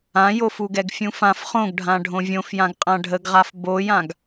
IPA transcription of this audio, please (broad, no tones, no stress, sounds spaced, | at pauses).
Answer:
ã j o f u ɡ ɛ ɡ fʲ ũ f ã f χ õ ɡ ɖʱ ã ɖʱ õ vʲ õ f j ã ɡ qʼ ã ɖʱ ə ɡ ʁ a f b o j ã ɡ